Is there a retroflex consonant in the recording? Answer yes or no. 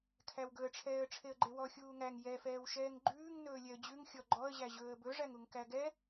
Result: yes